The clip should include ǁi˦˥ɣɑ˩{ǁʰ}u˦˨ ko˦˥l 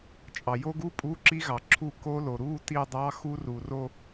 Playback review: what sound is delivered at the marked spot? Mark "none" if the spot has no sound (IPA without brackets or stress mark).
ǁʰ